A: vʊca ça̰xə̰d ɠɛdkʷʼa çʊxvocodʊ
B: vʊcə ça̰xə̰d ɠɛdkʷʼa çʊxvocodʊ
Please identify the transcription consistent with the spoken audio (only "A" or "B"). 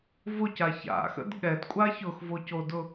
A